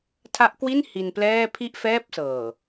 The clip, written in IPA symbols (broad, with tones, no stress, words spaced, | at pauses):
tʰa˦˥ʔkwi˥˩n hi˧nplɛː˥˩ pʰi˥˩ʔfɛː˥˩p̚sɤː˨˩